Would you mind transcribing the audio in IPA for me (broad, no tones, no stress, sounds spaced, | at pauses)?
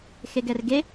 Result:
x e ɡ ɛ r ɡ e